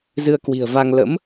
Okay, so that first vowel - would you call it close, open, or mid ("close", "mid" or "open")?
close